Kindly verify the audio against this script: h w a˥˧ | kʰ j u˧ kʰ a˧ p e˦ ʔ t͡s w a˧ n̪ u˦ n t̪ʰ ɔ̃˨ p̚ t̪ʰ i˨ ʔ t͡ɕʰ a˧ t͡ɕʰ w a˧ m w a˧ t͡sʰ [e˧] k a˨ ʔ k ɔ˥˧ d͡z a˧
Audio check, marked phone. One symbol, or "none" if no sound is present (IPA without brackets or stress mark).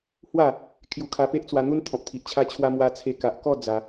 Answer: e˧